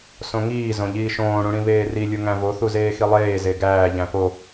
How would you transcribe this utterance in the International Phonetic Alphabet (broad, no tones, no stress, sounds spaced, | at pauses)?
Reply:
s õ ŋ iː z õ ʎ iː ʃ õː ɽ ũ ɽ ĩ β eː r i lʲ u ŋ æ̃ v o θ u z eː x i lˠ eː z e ɡ æː ʎ æ̃ p o